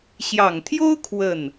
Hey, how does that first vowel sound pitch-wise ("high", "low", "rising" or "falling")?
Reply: low